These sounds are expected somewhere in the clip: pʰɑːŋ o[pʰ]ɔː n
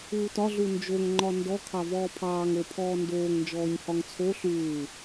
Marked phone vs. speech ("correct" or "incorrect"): correct